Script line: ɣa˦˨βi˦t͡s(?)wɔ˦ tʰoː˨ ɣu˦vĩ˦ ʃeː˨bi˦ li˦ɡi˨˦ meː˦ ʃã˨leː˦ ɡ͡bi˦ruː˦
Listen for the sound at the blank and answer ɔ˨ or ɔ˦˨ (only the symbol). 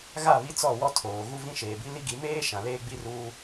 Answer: ɔ˦˨